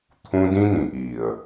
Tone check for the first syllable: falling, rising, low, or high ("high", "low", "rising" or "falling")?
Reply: high